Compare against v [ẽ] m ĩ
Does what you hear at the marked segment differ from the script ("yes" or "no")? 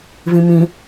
yes